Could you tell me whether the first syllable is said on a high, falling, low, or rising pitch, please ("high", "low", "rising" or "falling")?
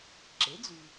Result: rising